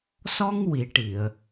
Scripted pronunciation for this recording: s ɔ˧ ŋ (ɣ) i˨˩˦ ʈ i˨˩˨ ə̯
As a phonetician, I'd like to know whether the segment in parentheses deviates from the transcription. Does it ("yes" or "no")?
yes